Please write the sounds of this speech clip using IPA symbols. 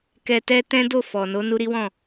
kɛ˧ tɛ˦tɛ̃˦do˦˨ fɔ˨no˧ nu˧ɾi˦wɔ̃˦˨

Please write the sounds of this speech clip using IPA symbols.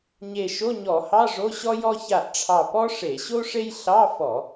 ɲe˧˩ʃo˧˥˧ɲɔ˧˩˧hɑ˧˥˧ ʐo˧˥˧ɕɔ˥jɔ˥ ça˧˩ʔʈ͡ʂʰɑ˧˩ pɔ˥ ʂe˧˩˧ɕo˥ ʂe˥j ɬɑ˧˥˧fɔ˧˩˧

